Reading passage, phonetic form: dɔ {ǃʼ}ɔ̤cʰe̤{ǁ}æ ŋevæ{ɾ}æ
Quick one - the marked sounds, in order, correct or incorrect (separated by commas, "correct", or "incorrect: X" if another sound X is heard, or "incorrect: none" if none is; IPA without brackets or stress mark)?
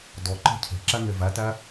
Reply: incorrect: ǃ, correct, incorrect: t